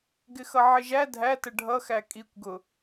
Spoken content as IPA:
ɡ ɪ x ʌ ʕ ɪ ʒ æ dʱ æ t ə ɖʱ ʌ x æ kʼ i kʷ ɡ ʊ

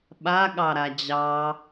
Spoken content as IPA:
ɓ a ɠ ɑ ɾ a d͡ʑ ɑ

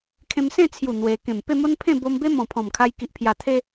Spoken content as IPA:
kʰ ẽ˧ m s ẽ˥˧ t͡sʰ j u˨˩ n̪ w e˧ k ẽ˨˩ m p e˥˧ m o˦ n pʰ ẽ˥˧ b o˧ m b e˦ m ɔ̃˨˩ pʰ ɔ̃˨˩ m kʰ a˧ j k i˨ ʔ pʰ j a˨˩ t̪ʰ e˧

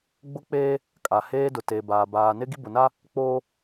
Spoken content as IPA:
ɡ͡b ʊ˦ k͡p eː˦ | kʼ a˨ h eː˦ d ʊ˨ t e˨ b aː˨ b aː˨ n ɪ˦ ɡ i˦ b ʊ˨ n a˦ | k͡p oː˦

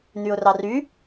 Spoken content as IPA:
n̪ y ʊ̯ r ɑ r y

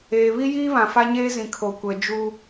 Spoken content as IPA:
eː˨ β i˦ j iː˦ β ã˨ f a˦ ɲ eː˦ z ĩ˨ kʰ o˨ kʷ ɛ˨ d͡ʒ u˦

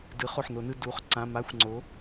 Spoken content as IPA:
d ɯ˩˥ χ o˩˧˩ ħ n o˨˩˦ n ɯ˩˧˩ d u˩˥ χ ǀ ã˩˧˩ m a˧˥˧ xʷ ŋ͡ǀ o˩˥

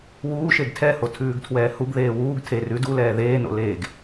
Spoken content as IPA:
w uː ʃ e ɡ tʰ ɛ h o tʰ ʉː ɡ tʰ w ɛː h u ɡ ð eː w uː ɡ tʰ e r ʉ d u l ɛː ð eː n o̰ l eː ɡ

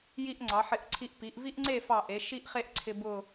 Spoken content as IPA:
j i˧ ʔ ŋ͡ǀ ɑ˩˧ ħ ɪ˧˩ ʔ ǀʰ i˧ ʔ p i˩˧ ʔ v i˥ ʔ ŋ͡ǀ e˥˧ f ɑ˧˩ ʔ e˩˧ ʃ i˥˧ ʔ χ e˥˧ ʔ ǀʰ ɪ˧ b ʊ˥˧

